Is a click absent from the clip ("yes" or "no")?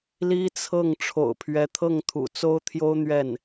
yes